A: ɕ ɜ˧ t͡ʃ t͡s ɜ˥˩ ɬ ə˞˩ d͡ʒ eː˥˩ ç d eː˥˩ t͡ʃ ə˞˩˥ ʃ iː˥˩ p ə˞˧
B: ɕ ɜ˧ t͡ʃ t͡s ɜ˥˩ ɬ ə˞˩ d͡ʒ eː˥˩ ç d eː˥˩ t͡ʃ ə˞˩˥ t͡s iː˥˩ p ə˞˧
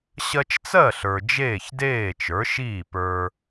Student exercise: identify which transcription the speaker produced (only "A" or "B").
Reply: A